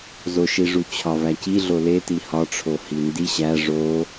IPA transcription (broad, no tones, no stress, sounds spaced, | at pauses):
z o ʃ i ʐ u t͡ɕʰ ɒ v æ c i ɮ o l e t i h ɒ ʈ͡ʂʰ o h i n d i ɕ æ ʐ o